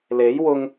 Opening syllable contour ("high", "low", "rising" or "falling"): rising